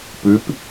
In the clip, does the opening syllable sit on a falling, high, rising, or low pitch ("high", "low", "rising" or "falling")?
rising